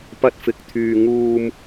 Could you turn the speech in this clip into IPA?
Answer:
p ɐ˧ t̚ f ɪ˨ k̚ t̪ʰ yː˧ ŋ uː˧ m

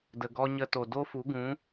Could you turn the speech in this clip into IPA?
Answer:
d ə˨ ɡ ɔ˧ ɲ ə˧ t o˨ d o˦ f u˨˦ ɡ ũ˨˦

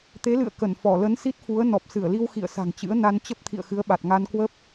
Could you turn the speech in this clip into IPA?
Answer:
t̪ e˨˦ l ɨ̰˧˨ ə̯ k ə˧˩ n f ɔ˧˩ l ə˨˦ n s i˦˥ t̚ f u˨˦ ə̯ n ɔ˨˩ p̚ s ɨ˧˩ ə̯ l i˧ w x ḭ˧˨ ə̯ s a̤˨˩ ŋ t͡ɕ ɨ̰˧˥ ə̯ n a˧ n t͡ɕ ə˦˥ p̚ t̪ʰ ḭ˧˨ ə̯ x ɨ˨˦ ə̯ ɓ a˨˩ t̚ ŋ a˧ n k w ə˦˥ p̚

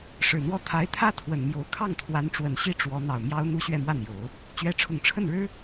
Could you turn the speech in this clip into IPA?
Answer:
ʂ ɻ̩˨˩ n̪ w ɔ˥˩ t̪ʰ a˧˥ ɪ̯ t̪ʰ ä˥ t̪ʰ w ə˨˩ n m j o˧˥ ʊ̯ kʰ ɑ˥˩ ŋ t̪ʰ w a˧˥ n ʈ͡ʂ w ə˨˩ n ɕ i˥ ʈ͡ʂ w ɔ˧˥ n̪ ɑ˨˩ ʊ̯ m j ɑ˥ ʊ̯ n̪ u˥ ɕ ɥ ɛ˥˧ m w a˥˩ n j o˨˩˦ ʊ̯ | t͡ɕ ɥ ɛ˧˥ ʈ͡ʂʰ ʊ˨˩ ŋ ʈ͡ʂʰ ə˥˩ n ɻ ɻ̩˥

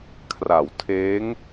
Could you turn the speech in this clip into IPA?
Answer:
kʰ r a˩˦ w tʰ eː˦˥ ŋ

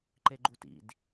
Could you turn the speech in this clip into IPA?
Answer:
ǃ e ɡ͡ǃ u t ḭ d

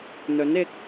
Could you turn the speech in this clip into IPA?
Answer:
n̪ ɵ˨˥ n ɪ˨˥ k̚

